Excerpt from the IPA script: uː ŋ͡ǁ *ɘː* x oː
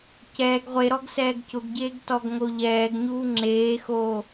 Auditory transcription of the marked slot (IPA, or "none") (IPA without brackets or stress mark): eː